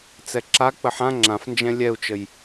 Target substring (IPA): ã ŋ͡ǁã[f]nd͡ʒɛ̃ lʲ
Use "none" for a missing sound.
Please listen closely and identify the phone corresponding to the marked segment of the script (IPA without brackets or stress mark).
f